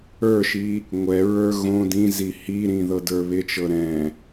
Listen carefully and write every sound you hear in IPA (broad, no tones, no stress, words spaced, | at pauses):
ə˞ʃi | ŋʷɛɹə˞ ɣõ dĩzi hiɾĩ ðɤdə˞βɪt͡ʃɤ ɾɛ̃